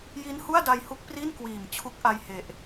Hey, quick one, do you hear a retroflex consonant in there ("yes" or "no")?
no